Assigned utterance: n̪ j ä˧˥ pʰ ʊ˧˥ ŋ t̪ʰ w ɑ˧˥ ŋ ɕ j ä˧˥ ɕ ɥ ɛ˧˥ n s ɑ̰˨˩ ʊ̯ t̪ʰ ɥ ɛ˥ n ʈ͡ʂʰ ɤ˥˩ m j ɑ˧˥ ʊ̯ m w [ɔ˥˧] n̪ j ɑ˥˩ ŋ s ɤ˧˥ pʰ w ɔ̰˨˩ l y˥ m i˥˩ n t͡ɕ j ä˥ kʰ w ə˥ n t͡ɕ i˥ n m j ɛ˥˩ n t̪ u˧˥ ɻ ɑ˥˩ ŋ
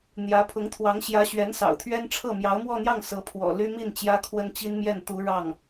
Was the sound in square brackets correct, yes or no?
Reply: yes